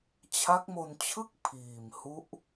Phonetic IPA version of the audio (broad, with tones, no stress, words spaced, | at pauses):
t͡ɕʰa˦˥k̚mo˧nt͡ɕʰɯ˥˩k̚ pʰiː˨˩mhu˦˥ʔ